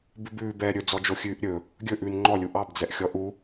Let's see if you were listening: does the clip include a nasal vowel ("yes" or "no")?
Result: no